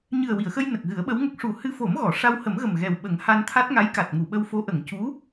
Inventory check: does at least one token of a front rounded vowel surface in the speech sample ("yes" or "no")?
no